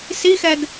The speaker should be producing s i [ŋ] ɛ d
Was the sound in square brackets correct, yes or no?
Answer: no